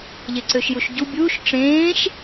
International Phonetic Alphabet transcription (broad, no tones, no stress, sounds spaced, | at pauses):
ʎ e ǀ ø ʃ j u ʃ ɟ u bʲ uː ʃ ʈ͡ʂ ẽː ʃ